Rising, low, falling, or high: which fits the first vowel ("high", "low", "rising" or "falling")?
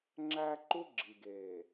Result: high